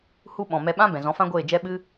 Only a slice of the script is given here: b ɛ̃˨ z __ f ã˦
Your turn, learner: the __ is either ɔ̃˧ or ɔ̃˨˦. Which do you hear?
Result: ɔ̃˨˦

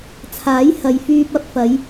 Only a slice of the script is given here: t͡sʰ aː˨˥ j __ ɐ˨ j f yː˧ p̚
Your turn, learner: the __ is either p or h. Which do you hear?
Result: h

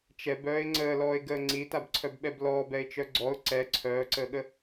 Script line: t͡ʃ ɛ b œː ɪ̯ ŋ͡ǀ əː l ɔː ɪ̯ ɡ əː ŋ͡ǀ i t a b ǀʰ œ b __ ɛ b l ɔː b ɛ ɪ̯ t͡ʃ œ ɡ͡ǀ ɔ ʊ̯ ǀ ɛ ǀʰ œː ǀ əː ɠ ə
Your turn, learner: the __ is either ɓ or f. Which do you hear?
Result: ɓ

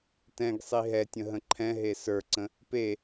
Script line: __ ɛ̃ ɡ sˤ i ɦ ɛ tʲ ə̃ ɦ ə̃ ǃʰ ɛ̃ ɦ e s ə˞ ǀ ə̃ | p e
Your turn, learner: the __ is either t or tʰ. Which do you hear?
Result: t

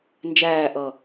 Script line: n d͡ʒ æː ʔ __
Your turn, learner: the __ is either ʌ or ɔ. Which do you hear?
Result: ʌ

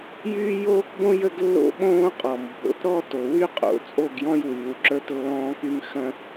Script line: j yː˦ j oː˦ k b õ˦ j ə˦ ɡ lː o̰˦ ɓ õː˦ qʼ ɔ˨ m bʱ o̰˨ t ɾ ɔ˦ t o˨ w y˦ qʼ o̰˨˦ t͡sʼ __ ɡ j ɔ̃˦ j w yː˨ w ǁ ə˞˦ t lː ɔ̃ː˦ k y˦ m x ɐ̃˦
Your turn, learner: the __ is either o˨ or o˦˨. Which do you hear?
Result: o˦˨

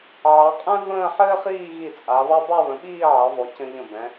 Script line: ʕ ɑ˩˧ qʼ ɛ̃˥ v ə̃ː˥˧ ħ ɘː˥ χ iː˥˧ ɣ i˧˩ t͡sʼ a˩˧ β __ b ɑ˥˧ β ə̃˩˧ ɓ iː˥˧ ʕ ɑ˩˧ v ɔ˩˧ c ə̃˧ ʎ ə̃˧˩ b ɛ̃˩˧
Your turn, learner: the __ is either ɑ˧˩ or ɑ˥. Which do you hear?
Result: ɑ˥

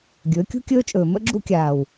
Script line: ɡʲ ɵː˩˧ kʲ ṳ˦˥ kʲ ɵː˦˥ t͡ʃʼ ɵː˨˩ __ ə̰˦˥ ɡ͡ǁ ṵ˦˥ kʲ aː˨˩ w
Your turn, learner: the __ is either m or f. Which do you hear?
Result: m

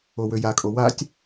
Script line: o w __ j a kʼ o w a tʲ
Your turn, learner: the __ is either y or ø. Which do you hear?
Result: ø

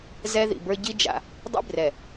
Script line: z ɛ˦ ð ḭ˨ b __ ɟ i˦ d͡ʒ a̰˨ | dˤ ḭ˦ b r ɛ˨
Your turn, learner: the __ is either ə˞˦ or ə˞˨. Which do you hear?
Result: ə˞˦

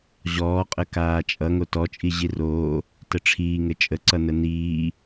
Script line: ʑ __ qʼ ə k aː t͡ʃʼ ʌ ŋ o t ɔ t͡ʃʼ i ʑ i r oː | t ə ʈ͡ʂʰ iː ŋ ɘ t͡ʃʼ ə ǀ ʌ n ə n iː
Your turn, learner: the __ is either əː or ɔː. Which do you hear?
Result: ɔː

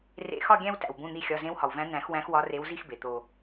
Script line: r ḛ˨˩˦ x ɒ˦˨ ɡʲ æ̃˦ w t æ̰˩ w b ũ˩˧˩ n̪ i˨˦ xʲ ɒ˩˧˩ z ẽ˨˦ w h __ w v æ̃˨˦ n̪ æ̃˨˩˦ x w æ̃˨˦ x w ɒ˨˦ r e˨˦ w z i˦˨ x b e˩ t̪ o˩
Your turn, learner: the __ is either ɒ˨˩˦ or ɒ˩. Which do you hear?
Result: ɒ˩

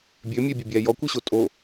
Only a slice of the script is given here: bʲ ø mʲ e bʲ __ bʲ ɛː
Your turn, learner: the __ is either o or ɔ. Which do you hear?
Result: o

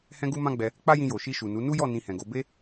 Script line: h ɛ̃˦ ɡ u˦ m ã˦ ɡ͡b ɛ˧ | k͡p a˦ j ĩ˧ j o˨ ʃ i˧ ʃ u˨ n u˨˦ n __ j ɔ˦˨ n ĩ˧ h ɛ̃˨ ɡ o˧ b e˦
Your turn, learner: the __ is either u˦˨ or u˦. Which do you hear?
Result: u˦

